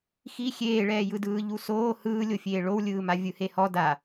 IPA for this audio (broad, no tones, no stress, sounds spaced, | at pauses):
x i xʲ eː ɭ ɛː j ɯ d ɯː ʎ u s oː h ɯː lʲ o fʲ eː ɭ o w lʲ ɯː m a vʲ ɯ h e h ɔ d a